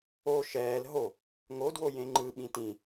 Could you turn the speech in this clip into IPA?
o ʃ ɛː l ɦ o | ŋ o d w o j ẽ ŋ͡ǃ ɯ ɓ ĩ t ĩ

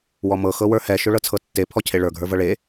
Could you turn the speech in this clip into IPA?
w ɔ m ɤ x ɤ w ə˞ h ɛ ʃ ʊ ɭ ɤ t͡sʰ ɤ tː e pʰ ɔ cʰ e ɭ ə˞ ɡʱ ə˞ v ɤ ɭ e

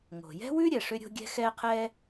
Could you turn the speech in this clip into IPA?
ŋ o̤˩ j ɛ̤˥ w ʉ˥ ɾʲ ɛ˩ ʂ ʏ˥ ɾʲ o̤˥ ɡʲ ɛ̤˥ x ɛ˥ qʰ ɛ˥

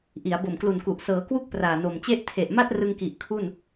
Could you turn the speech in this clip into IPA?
ʔ i˩˦ a̯ b o˨˩ m k l u˨˩ n k u˨˩ ʔ s ɤː˩˦ k w u˥˩ k̚ p r aː˨˩ n o˨˩ m t͡ɕ e˥˩ ʔ tʰ e˨˩ ʔ m a˥˩ t̚ r ɯ˧ ŋ k i˨˩ ʔ kʰ u˥˩ n

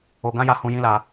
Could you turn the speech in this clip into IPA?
o˧ ɡ ã˦ j a˦˨ h ũ˧ j ĩ˦ l a˧

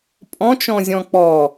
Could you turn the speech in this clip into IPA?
pʼ ɔ̃ t͡ʃ ɔ̃ zʲ ɔ̃ k͡p ɔ

